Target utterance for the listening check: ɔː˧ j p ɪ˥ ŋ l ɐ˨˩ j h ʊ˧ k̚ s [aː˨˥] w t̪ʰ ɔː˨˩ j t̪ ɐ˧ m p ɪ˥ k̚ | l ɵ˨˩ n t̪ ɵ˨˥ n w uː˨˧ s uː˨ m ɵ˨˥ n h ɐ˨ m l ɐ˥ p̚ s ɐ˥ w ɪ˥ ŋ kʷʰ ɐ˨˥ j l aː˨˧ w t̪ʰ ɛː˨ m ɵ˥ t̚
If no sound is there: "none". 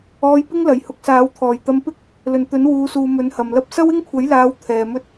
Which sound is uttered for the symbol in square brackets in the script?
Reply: aː˨˥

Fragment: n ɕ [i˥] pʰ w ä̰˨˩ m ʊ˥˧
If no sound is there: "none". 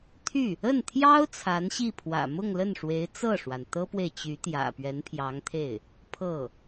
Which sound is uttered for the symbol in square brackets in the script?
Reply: i˥˩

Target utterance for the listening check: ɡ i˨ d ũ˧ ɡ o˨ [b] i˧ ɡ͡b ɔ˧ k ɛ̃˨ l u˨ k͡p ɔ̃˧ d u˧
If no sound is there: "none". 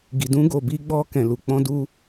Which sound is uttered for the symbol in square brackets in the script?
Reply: b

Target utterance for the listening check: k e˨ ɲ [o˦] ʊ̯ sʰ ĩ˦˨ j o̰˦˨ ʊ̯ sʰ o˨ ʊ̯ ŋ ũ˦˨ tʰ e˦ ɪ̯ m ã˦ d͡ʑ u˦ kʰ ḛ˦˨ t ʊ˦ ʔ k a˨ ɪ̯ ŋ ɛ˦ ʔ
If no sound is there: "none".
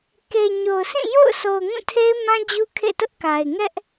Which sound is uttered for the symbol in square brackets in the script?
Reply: o˨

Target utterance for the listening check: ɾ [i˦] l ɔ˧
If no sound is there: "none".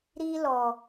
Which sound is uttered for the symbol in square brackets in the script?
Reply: i˦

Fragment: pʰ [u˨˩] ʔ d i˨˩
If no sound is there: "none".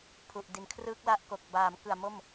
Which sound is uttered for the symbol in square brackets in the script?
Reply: u˨˩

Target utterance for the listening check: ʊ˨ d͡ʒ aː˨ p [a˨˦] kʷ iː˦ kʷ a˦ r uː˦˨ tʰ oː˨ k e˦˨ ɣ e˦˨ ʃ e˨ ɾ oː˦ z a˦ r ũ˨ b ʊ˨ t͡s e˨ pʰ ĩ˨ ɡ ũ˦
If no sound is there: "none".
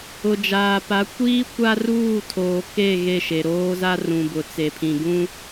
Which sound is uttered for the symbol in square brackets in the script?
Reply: a˨˦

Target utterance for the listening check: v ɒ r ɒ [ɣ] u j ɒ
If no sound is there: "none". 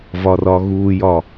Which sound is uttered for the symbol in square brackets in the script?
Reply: ɣ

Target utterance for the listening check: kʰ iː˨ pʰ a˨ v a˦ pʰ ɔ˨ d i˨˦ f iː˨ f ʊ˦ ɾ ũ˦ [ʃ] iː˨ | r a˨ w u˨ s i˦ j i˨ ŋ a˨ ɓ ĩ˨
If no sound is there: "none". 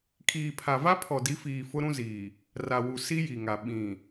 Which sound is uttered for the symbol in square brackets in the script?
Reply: z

